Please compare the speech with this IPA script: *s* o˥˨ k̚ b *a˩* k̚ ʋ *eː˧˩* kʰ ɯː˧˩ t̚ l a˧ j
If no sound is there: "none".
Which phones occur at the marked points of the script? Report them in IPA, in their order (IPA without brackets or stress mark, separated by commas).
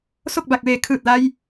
s, a˧˩, eː˧˩